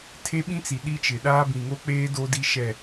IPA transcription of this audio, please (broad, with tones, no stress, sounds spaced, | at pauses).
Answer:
tʰ e˦ ɓ ĩ˦ t͡s i˨ ɗ i˦ t͡ʃ ɪ˨ ɗ aː˦ b ĩ˨ ŋ o˦ k͡p eː˦ d o˦ d i˦ ʃ ɛ˦˨